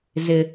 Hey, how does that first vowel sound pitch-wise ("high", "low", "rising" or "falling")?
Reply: high